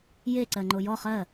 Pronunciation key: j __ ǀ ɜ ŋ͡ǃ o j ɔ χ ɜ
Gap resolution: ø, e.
e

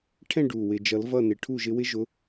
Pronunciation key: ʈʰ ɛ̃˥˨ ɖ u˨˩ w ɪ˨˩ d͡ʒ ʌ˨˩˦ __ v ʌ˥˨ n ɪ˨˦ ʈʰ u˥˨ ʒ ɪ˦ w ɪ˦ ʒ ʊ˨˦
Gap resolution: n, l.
l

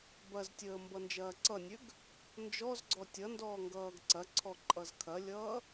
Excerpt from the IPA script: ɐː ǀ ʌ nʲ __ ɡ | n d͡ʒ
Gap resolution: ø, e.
ø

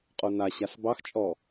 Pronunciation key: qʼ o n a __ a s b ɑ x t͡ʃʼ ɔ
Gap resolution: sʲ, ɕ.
ɕ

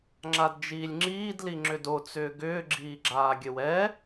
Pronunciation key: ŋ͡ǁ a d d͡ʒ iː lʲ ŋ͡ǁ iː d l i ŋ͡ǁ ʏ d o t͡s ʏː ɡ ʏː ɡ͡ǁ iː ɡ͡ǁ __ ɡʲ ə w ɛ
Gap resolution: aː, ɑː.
aː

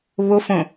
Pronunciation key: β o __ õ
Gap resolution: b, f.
f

